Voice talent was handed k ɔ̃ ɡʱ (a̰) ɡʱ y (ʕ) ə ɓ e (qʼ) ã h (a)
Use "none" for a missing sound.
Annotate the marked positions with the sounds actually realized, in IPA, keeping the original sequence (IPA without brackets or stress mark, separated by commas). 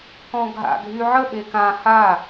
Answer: a̰, ʕ, k, a